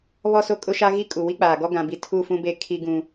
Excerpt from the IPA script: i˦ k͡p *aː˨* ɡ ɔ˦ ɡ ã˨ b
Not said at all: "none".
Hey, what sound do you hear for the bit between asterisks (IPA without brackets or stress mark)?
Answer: aː˨